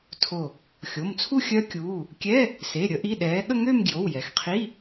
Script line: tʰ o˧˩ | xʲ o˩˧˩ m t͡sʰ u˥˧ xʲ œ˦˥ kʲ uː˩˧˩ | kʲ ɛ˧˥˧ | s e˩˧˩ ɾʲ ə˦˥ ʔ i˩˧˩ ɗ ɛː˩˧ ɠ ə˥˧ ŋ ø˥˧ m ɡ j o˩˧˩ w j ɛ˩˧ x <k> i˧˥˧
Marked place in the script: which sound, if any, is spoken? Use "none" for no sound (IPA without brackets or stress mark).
qʰ